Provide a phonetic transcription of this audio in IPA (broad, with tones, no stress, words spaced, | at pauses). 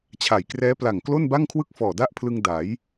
t͡ɕʰa˨˩jkrɛː˦˥ pla˨˩ŋ klo˥˩nba˥˩ŋkʰwɯ˥˩k̚fɔː˨˩ da˥˩ʔpʰlɯ˧ŋ da˩˦j